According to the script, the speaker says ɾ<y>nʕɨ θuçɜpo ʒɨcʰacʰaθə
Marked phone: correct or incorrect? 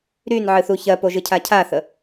correct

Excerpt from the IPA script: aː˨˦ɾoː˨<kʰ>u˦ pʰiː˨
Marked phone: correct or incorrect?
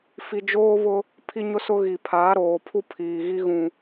incorrect: pʰ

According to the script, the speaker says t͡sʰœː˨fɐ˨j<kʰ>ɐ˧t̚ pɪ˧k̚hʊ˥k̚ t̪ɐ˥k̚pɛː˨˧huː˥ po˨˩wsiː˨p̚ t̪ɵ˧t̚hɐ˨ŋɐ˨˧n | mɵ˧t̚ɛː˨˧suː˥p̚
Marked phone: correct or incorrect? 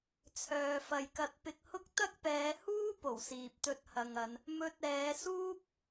incorrect: k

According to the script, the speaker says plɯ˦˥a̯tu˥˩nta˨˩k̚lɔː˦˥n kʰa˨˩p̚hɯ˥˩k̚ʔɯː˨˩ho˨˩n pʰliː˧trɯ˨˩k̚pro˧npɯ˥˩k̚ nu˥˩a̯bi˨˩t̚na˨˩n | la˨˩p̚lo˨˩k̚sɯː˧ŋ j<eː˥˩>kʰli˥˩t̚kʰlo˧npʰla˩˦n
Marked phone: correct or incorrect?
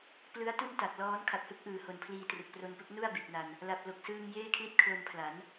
correct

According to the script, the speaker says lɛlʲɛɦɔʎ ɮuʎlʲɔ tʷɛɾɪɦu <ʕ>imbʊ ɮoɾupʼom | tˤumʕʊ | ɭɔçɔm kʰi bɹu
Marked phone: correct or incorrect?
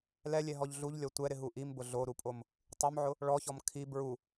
incorrect: ʔ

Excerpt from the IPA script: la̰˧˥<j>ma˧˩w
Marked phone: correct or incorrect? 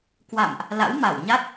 incorrect: w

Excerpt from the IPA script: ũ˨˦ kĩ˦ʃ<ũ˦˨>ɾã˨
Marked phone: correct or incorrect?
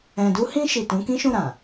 correct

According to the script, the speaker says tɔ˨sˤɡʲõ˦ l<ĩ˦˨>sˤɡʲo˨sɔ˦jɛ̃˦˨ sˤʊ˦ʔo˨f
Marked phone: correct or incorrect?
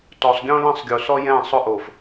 correct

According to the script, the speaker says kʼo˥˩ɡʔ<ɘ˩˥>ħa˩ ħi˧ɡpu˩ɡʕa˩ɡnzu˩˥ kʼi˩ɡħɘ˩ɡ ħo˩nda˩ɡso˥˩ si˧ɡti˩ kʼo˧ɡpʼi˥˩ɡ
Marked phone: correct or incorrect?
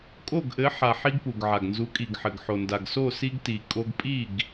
correct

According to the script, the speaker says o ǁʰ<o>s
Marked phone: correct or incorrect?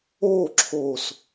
correct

